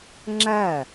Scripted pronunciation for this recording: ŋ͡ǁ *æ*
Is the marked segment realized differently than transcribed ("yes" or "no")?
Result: no